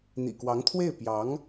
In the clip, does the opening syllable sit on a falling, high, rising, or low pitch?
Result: low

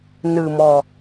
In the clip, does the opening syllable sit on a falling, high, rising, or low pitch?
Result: low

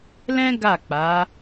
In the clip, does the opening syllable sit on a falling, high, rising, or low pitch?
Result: high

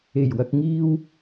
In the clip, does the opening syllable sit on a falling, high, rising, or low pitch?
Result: low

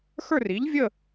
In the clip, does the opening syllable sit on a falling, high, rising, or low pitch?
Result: falling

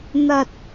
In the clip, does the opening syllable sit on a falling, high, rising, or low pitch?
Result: low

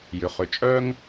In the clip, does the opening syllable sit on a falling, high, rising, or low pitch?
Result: low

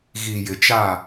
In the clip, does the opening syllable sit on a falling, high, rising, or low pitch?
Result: low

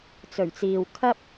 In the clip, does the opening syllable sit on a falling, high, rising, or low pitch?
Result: low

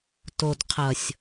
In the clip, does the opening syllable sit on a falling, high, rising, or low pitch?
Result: low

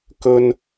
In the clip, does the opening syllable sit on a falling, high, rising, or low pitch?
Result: high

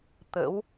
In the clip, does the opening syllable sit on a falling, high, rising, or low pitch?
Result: rising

